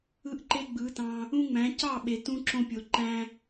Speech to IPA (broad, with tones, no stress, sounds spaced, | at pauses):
ɯ˧ ʔ ǃ e˧ ɡ͡b ɯ˨˦ t ɑ̃˧ | ũ˦ ŋ͡m æ̃˨˦ c ɑ˦˨ ɓ e˨ t ũ˧ ǁ õ˧ pʲ o˨ ǃ æ̃˦